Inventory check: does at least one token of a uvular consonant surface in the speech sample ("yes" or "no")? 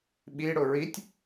no